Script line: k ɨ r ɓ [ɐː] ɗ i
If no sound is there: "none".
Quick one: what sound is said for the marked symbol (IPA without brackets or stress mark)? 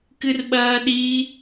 ɐː